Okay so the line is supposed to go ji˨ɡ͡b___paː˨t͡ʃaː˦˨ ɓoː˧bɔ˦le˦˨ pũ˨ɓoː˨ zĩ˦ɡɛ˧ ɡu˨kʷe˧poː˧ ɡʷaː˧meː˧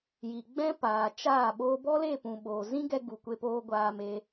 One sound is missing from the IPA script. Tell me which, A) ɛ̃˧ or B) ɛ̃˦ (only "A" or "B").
B